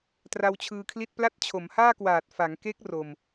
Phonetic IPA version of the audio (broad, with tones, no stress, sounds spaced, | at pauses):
t r a˧ w t͡ɕʰ ɯː˧ kʰ l i˥˩ t̚ p l a˦˥ t̚ t͡ɕʰ o˩˦ m h aː˥˩ k w aː˨˩ t̚ f a˩˦ ŋ k e˦˥ k̚ r o˧ m